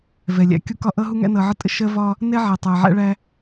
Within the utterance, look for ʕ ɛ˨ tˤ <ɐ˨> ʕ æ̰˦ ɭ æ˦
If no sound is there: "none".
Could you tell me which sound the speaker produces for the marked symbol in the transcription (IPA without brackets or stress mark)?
æ˨